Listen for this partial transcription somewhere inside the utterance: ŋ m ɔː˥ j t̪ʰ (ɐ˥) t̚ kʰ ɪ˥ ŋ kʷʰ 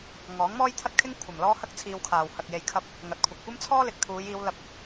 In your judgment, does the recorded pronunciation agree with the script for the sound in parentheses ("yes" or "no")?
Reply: yes